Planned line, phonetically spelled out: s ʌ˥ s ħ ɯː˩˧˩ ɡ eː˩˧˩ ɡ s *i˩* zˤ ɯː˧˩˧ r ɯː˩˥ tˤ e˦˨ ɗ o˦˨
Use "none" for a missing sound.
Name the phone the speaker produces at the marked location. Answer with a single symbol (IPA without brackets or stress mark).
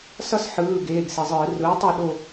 i˩